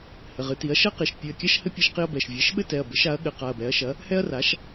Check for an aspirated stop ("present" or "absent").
absent